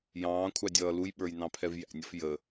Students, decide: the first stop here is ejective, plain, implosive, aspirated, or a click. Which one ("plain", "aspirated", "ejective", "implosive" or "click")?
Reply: aspirated